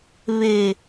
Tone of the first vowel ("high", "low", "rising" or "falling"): low